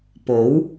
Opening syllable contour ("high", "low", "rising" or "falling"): rising